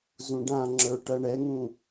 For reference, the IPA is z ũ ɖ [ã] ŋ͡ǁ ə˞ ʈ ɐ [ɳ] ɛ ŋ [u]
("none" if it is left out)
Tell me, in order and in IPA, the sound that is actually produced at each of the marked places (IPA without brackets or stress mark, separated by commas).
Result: ã, ɳ, ũ